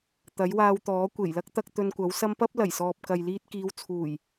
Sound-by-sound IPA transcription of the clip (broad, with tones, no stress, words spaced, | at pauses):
t̪ɐ˨˥jwaː˧w t̪ɔː˨˥kʷe˨˩jlɐ˥k̚t̪ɐ˧k̚ t̪ɵ˧nkʷɐ˨˥wsɐ˥m pɐ˥p̚lɐ˨˩jsɔː˨p̚ kɐ˨jliː˧t̚kiː˨˧w t͡sʰuː˨˩j